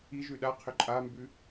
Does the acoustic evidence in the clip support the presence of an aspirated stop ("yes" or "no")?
yes